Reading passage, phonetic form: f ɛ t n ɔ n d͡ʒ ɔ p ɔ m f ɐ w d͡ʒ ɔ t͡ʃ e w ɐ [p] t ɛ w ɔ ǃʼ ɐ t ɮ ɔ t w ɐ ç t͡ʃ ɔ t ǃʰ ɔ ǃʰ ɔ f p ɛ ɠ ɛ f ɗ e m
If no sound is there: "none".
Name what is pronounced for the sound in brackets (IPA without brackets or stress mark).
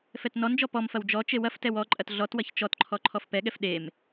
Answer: f